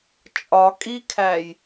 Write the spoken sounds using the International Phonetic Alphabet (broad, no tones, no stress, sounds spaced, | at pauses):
t͡ʃʼ ɒ kʼ i kʰ æ j